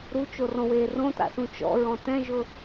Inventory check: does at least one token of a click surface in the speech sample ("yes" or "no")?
no